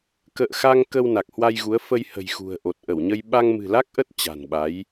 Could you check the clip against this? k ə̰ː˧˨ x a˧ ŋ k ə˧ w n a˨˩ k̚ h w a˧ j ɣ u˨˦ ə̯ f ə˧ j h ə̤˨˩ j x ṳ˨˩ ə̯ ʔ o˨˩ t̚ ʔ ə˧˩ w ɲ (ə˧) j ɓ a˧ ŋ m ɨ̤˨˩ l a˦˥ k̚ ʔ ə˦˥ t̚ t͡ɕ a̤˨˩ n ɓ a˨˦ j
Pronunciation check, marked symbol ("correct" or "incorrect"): correct